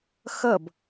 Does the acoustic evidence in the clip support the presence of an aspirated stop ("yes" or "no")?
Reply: no